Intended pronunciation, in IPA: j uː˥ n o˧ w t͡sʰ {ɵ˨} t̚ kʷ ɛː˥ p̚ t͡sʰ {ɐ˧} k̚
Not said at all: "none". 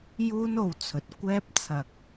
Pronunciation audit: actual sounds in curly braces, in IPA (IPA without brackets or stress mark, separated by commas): ɵ˨, ɐ˧